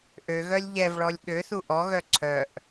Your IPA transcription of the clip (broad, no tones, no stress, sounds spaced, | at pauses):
ʔ ø ɣ œ lʲ ʎ ɛ v ɭ ɔ lʲ ɠ ø θ u ʔ ɔ ɣ œ ǀʰ œ ʔ